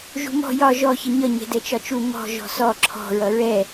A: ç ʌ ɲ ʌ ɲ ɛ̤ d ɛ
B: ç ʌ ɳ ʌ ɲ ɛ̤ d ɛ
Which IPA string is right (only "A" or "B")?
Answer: A